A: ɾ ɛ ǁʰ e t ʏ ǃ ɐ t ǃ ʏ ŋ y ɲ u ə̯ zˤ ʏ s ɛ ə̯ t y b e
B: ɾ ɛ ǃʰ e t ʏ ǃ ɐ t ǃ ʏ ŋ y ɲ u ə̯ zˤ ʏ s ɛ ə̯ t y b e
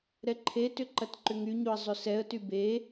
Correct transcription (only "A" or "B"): B